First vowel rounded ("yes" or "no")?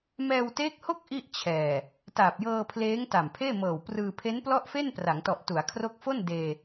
no